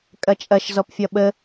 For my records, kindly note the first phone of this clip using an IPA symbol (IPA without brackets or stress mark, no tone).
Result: kʼ